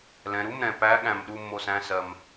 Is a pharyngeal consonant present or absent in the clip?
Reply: absent